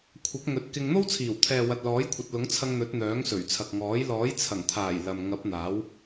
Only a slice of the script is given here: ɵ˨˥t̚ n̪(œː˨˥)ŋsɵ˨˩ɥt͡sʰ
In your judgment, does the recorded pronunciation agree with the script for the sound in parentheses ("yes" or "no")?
yes